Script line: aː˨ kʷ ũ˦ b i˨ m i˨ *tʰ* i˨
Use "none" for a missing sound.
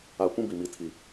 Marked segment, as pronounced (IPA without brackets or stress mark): tʰ